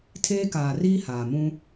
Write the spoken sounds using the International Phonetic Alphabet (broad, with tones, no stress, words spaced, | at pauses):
tʰeː˦kaː˨riː˦ haː˨mũ˦